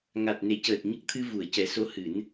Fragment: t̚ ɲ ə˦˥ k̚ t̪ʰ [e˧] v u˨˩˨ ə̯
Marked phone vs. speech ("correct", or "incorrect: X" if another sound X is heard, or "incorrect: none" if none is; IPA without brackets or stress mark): incorrect: ɨ˧